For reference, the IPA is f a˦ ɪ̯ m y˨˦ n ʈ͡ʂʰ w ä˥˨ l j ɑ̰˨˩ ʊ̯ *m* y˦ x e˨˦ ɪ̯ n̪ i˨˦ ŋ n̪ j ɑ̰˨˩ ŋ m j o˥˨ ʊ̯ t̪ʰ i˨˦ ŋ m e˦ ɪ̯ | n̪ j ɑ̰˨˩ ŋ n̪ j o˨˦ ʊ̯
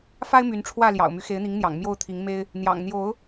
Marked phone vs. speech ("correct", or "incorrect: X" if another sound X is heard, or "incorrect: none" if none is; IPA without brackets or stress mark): correct